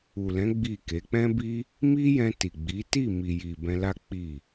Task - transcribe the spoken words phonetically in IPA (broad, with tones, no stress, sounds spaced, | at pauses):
u˨ l ɛ̃˨˦ ɡ͡b i˦˨ k e˨˦ k͡p ɛ̃˦ b i˦ | m i˦ j ɛ̃˧ t i˨ ɡ͡b i˨˦ t i˦˨ m i˨ j i˨ b ɛ̃˧ l a˦ k͡p i˦˨